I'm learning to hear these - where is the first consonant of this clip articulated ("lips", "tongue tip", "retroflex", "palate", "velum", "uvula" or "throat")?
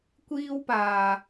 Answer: velum